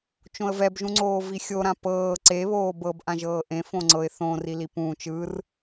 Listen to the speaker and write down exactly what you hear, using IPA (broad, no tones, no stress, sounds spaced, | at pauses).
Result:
t͡ʃ õ ə̯ v ɛ b ʒ ũ ŋ͡ǀ oː v i xʲ o ɾ ã p ɤː ǀ e β oː b ɤ b ʔ ã ʒ ɤː ʔ ẽ f õ ŋ͡ǀ ɤ ɪ̯ θ õ r i l i p ũː t͡ʃ ɯ r